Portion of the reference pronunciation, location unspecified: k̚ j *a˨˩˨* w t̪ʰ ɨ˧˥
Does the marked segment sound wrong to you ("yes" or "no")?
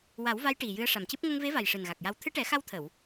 yes